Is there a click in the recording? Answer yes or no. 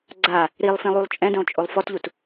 yes